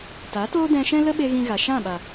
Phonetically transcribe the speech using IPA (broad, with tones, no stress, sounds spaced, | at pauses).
t a˨˦ t oː˦ d ɛ̃˧ ʃ ɛ̃˦ l ə˦ ɓ e˧ ɣ ĩ˧ ɣ a˨ ʃ ã˦˨ ɓ a˨